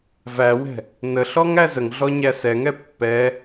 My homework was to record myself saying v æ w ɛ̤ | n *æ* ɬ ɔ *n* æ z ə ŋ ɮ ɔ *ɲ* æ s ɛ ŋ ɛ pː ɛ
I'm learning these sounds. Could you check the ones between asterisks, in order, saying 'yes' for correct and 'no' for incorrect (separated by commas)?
no, no, yes